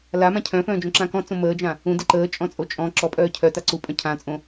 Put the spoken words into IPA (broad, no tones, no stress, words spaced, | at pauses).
lamã cʰœ̃fœ̃ːd͡ʒõǁã kɔ̃t͡sõ məːd͡ʒã | ũdə ǃəːt͡ʃʼɔ̃t͡sʼo t͡ʃʼɔ̃ ǁɔpʼœː cʰœta ǀupʼœ̃ cʰãt͡sʼõ